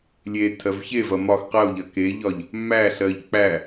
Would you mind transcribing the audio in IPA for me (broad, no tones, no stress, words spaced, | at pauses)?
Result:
lʲetʰɜv çevɐ mɒx qɜo̯ʎɐ keʎɒʎ | mæɬɜʎ k͡pæ